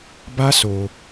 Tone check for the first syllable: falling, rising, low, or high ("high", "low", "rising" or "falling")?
high